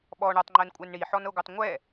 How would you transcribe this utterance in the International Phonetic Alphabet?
ɓ ɔ ɳ ɔ tˤ ŋ͡ǃ ɜ n kʷʼ æ n ɳ i ħ ɔ n ɤ ɡʷ ɜ tˤ ŋʷ ɛ

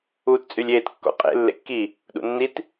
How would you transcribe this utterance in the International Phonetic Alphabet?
uː t t͡sʼ y lʲ eː t kː ɔ̰ qʼ ḛ lː ḛ kː i | ɗ ṵ nː i t

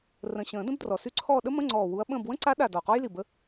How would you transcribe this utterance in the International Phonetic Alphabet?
r ə̃˨˩ ɕ ə̃ː˨˩˦ d ə̃˥ b d r ɔ˨˩ s y˥˧ ǀʰ ɔː˥˧ ɗ ə˥ m ə̃˧˥˧ ŋ͡ǀ ɔː˨˩ w u˧˥ ɐ̯ ɓ ə̃ː˥˧ b w ə̃˥ ǀ a˧˥ ɗ a˨˩ d ɔ˨˩ q ɔ˥ j l i˨˩ b ə˧˥

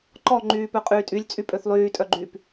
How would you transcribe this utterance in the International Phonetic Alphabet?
ǃ ɔ ŋ͡ǃ yː p œ qʼ yː tʼ y lʲ t͡sʼ y pʼ ø θ lˠ yː tʼ œ ɡ͡ǃ yː p

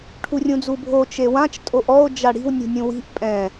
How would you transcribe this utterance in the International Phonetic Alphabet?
ʈʰ u rʲ ũ d͡z u bʱ o t͡ʃ e w ã t͡ʃ tʼ o ʔ ɔ o̯ d͡ʒ a ɽ i̤ w nʲ ṳ nʲ ũ w i̤ ʔ pʼ ɛ̃

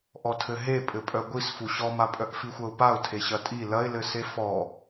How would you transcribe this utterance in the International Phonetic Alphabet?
ʔ ɔ tʰ ɘ ɦ e pʼ ɘ pʼ œ ɡʷ i s f u ɕ ɔ m a pʼ œ ʔ f i xʷ ɐ ʊ̯ p a ʊ̯ tʰ e ɕ ɐ tʼ i l ɐ ɪ̯ l ɘ s e f ɔ

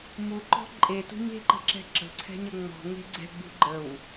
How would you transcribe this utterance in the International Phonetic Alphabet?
m u ǃ ɔ̤ ǃʼ e t ṳ ɲ e̤ ǃ ə̤ ǁ ɛ̤ ǁ ə̤ ǀʰ ɛ̤ ɲ ɐ ŋ͡m ɔ̤ ŋ e̤ ɡ͡ǀ ɛ̤ ɡ͡b ṳ ɡ͡ǃ ə w

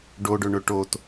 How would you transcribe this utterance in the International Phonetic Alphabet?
ɖ o ɖ ɵ ɳ ɵ ʈ o t

